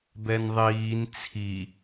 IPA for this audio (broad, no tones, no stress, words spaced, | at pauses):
bɛnðˤiːn t͡sʰi